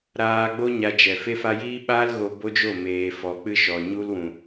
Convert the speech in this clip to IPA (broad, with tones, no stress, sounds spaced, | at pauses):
ɾ aː˧ ɡ͡b o˦ ɲ a˧ d͡ʒ ɛ˨ f e˧ f a˧ j iː˦ ɓ aː˦ l ɣ o˧ b o˦ d͡ʒ o˦˨ m eː˨ f ɔ˨ k͡p ɨ˦ ʃ ɔ˨ ɲ u˦ l w ũ˨